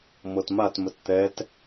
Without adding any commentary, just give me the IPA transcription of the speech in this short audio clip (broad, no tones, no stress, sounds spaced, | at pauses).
m ɤ t m a t m ə t t̪ ɛ t